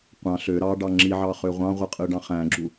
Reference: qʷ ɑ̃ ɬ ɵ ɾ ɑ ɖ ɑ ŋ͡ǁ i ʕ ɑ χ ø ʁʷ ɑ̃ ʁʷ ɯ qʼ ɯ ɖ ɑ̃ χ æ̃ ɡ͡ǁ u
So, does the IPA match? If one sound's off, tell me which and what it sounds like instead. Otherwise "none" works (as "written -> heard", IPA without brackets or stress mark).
ɵ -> ø